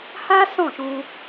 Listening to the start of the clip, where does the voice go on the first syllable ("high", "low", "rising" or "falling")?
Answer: high